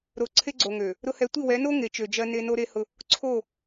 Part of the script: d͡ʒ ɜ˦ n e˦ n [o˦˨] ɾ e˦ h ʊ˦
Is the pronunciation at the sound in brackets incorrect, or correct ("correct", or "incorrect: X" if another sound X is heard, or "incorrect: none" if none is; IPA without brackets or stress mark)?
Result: incorrect: o˦